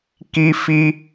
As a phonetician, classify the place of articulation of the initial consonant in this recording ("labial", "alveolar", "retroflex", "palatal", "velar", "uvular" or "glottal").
velar